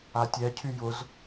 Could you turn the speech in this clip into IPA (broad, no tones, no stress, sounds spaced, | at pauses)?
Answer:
a tʲ ɛ cʰ y j ʊ z